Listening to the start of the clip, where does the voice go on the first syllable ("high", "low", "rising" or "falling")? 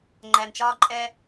low